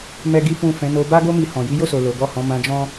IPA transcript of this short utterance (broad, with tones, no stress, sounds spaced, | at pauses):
m ɛ˦ ɡ i˦ f ũ˦˨ f ɛ̃˨˦ n o˧ b a˦ ɡ o˦ m i˧ h ɔ̃˨ j i˨˦ j o˦˨ s o˨ l o˨˦ ɡ ɔ˦˨ h ɔ̃˨˦ m ã˧ d͡ʒ ɔ̃˦